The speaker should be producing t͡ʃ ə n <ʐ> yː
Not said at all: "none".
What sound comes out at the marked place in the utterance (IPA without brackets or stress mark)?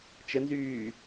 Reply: z